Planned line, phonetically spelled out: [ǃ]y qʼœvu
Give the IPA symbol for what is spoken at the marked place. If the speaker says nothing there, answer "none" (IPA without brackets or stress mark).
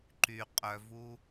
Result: ǃ